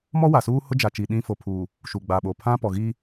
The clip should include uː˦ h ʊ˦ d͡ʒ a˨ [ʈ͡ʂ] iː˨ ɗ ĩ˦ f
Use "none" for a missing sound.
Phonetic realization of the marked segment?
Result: t͡ʃ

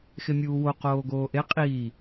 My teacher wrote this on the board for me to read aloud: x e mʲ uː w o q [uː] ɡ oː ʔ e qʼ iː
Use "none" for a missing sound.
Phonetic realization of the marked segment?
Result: oː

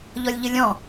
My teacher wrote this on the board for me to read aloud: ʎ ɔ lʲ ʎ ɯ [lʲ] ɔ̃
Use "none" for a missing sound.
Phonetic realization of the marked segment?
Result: lʲ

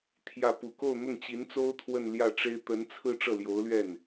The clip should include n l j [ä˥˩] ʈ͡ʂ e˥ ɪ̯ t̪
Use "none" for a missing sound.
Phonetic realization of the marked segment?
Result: ä˥˩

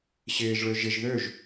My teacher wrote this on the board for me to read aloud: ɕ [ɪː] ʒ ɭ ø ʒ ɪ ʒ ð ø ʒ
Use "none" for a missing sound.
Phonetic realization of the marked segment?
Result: ɪː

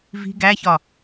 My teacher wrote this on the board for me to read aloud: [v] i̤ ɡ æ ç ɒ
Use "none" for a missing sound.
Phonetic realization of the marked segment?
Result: v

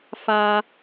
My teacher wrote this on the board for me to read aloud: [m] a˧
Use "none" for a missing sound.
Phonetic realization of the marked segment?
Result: f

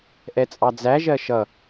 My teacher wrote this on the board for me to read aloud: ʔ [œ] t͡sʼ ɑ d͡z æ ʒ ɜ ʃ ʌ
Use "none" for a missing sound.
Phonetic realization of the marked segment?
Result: ɛ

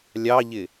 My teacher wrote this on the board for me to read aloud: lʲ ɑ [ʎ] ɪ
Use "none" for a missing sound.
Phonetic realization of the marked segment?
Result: ʎ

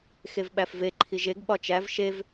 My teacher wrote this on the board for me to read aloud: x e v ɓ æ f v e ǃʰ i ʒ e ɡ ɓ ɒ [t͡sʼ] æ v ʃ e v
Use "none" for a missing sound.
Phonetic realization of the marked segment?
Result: t͡ʃ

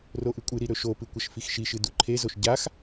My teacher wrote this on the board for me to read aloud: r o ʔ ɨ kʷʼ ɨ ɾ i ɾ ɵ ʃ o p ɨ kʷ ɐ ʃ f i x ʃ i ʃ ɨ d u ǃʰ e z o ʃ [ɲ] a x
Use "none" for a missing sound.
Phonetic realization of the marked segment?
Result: ɟ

